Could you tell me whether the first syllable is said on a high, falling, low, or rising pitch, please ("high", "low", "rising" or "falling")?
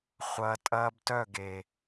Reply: high